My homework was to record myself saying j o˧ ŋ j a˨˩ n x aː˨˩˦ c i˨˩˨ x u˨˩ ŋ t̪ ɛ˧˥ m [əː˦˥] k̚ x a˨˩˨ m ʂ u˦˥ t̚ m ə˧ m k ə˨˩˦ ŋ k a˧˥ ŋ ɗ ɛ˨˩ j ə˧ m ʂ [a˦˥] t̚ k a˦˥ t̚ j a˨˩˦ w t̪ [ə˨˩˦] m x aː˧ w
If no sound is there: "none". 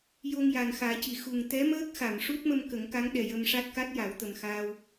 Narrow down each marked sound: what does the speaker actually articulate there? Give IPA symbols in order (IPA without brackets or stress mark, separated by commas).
əː˦˥, a˦˥, ə˨˩